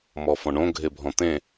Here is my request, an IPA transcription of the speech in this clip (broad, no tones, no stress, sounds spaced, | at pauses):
m ɔ f ɔ̃ ɳ õ ɡʱ e bʱ ɔ̃ t̪ ẽ